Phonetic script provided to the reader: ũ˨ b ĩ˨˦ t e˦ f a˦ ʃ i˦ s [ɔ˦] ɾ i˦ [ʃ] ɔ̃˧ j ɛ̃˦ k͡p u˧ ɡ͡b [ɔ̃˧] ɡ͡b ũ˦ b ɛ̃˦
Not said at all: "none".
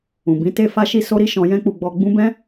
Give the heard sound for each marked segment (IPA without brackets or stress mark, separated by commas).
o˦, ʃ, ɔ˧